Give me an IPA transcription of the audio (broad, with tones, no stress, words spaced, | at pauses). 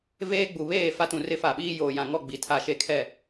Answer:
veː˦ɡ͡bu˨ βeː˦˨ fa˦tũ˨rɪ˦fa˨ ɓiː˦ joː˨ jã˨ŋɔ˦˨ ɡ͡bi˨tʰa˦˨ʃe˦˨ kʰɛ˦˨